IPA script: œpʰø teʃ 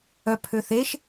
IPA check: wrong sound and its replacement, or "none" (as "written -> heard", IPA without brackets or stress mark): t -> θ